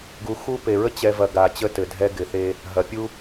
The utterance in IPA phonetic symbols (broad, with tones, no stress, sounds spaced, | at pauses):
ɡ u˨ x u˦ p e˨ ɹ ə˦ t͡ɕ ɛ˨ v ɐ˨ ɡ a˨ t͡ɕ ə˦ t ɘ˨ dʱ ɛ˦ ɡ ɪ˨ θ e˦ | ɦ ɐ˨ pʲ u˦